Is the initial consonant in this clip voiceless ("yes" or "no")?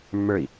no